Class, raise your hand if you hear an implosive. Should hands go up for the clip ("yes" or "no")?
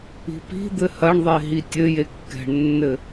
no